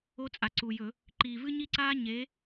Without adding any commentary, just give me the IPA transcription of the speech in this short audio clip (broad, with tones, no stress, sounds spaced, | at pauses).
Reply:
o˦ t͡sʼ a˨˩ ǀ u˨˩ j ɵ˧˩˧ | ǃ iː˨˩ v ɨ˦ ɲ i˦ ǀ aː˦ ɲ eː˨˥